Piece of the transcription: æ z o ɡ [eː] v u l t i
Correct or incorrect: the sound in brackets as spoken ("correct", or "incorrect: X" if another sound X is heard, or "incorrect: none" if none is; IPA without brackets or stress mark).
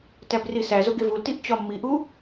incorrect: e